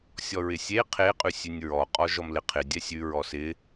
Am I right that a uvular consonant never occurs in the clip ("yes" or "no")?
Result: no